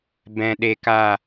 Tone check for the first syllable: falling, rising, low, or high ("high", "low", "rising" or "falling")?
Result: low